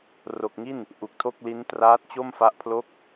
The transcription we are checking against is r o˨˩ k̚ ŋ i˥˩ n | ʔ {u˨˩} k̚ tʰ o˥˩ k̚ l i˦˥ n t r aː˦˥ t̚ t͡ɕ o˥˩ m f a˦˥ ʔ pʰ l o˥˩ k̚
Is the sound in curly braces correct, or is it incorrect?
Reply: correct